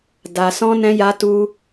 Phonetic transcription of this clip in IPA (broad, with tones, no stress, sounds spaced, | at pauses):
d a˨ s ɔ̃˧ n ɛ̃˧ j a˧ t u˧